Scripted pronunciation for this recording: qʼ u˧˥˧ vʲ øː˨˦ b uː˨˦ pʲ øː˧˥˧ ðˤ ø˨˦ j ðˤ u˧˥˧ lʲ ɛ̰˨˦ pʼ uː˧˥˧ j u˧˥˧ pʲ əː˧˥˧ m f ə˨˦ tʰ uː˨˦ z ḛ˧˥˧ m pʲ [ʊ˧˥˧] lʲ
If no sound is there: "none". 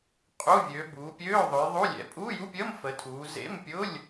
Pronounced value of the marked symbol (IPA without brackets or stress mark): ʊ˧˥˧